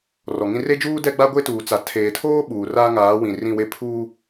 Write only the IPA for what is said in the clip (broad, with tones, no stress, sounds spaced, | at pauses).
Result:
r ɔ˨ ŋ ĩ˦ r e˦ d͡ʒ uː˦ d ɛ˦ ɡ͡b a˦ ɡʷ e˦ t uː˨ t͡s a˨ tʰ eː˨ tʰ oː˦ ɓ uː˨ r aː˦ ŋ aː˨˦ w ĩ˨ r ĩ˦˨ w e˦ pʰ uː˦